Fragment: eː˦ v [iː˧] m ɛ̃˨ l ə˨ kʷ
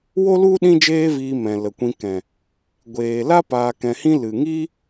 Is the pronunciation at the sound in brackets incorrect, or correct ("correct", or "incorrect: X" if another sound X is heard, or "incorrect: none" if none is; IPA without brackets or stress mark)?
correct